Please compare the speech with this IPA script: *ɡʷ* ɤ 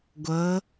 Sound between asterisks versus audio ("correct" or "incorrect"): correct